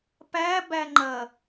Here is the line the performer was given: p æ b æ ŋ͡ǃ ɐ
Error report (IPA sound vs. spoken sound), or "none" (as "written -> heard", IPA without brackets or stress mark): none